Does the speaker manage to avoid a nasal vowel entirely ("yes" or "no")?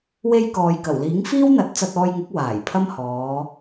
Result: yes